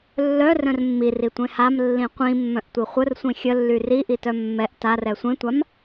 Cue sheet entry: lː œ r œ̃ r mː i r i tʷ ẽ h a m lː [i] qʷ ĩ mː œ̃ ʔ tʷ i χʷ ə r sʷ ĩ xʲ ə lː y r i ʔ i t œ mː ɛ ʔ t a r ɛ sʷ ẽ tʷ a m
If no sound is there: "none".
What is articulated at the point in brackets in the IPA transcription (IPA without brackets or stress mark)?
ĩ